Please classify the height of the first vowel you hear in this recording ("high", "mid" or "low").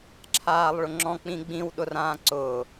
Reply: low